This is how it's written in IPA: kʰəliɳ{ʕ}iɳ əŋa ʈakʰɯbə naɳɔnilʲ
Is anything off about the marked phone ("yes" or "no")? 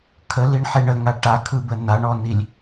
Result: yes